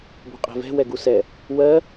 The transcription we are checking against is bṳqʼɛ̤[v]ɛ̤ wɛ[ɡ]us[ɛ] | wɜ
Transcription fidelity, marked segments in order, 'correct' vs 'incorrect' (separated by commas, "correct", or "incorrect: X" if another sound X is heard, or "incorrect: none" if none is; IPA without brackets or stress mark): correct, correct, correct